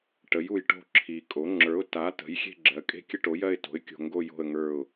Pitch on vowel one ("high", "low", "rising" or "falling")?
rising